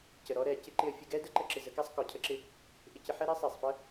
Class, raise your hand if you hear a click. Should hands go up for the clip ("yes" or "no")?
yes